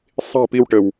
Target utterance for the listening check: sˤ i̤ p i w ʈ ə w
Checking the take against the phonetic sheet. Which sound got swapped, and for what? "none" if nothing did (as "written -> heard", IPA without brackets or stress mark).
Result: none